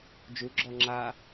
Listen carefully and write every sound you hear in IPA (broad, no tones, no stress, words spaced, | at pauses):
d͡ʒu ɡ͡ǁɔŋ͡ǁa